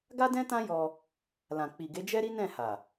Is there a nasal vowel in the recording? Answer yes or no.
yes